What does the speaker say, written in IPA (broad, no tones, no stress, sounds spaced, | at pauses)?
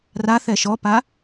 r a θ ɛ ʃ ɔ p a